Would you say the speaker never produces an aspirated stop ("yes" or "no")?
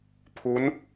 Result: no